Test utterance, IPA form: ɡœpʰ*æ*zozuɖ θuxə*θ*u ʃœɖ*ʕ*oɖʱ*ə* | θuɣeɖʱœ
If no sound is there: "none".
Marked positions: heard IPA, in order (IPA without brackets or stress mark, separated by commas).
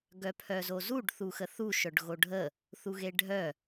œ, θ, ɣ, ə